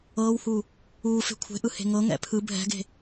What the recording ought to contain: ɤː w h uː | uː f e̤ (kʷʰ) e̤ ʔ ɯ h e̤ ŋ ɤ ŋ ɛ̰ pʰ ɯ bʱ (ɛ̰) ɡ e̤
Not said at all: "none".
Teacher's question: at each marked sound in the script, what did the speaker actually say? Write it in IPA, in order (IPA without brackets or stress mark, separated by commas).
kʷʰ, ɛ̤